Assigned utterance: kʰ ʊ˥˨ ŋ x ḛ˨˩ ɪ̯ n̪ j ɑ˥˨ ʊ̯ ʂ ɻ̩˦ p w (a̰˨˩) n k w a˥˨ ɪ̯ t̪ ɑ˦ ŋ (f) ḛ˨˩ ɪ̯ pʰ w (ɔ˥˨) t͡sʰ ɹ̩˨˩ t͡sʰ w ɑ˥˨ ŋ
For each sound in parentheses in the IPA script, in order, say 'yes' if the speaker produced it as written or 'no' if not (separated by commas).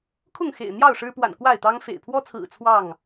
yes, yes, no